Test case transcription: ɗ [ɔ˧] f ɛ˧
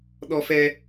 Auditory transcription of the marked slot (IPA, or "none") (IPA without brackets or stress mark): ɔ˧